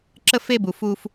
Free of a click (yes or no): no